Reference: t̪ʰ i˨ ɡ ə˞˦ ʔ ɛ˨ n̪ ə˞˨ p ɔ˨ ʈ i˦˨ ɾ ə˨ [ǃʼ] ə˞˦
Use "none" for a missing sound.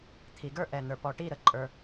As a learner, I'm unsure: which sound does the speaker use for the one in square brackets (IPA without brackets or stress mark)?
ǃʼ